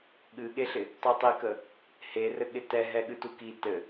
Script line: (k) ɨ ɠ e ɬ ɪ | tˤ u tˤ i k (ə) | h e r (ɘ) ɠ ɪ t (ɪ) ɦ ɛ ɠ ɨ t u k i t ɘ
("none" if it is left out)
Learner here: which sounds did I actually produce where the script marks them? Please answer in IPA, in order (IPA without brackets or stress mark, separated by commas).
ɠ, ə, ɘ, ɛ